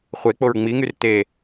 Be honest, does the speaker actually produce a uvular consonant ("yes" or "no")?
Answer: yes